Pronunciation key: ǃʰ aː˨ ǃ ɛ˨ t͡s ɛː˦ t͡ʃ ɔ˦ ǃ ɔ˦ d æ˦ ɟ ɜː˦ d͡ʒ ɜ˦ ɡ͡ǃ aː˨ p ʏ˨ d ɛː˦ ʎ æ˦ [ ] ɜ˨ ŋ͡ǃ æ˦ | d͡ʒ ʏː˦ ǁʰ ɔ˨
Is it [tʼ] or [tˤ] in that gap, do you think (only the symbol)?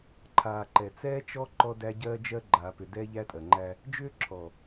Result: tʼ